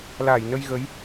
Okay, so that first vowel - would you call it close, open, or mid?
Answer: open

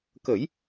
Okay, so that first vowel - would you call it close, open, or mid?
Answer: mid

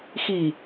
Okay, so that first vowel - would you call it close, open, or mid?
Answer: close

